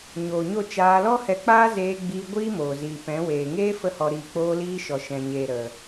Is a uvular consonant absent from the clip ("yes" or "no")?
yes